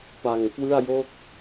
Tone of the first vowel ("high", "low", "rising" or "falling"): low